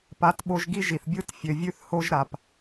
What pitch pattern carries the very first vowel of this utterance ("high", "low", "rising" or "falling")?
rising